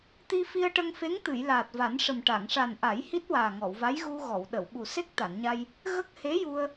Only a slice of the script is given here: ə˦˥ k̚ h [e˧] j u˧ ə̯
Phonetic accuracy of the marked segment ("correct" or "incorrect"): incorrect